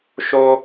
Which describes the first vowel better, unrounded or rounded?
rounded